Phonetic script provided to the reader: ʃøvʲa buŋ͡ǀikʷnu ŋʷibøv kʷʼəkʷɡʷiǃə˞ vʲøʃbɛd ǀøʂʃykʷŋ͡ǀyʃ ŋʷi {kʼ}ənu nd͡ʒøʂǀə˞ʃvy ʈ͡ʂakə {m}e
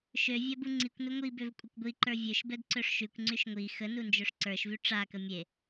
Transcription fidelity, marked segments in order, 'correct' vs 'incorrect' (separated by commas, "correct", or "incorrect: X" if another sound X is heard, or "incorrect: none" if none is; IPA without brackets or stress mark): incorrect: x, incorrect: mʲ